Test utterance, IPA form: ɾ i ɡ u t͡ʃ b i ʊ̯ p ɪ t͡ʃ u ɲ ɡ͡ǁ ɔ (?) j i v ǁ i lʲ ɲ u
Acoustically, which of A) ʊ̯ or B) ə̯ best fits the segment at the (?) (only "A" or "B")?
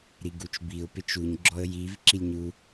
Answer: B